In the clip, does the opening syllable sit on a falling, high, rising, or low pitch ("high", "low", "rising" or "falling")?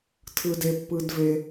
low